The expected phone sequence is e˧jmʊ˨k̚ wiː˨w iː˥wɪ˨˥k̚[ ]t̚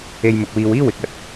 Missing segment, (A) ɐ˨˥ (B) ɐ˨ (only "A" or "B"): B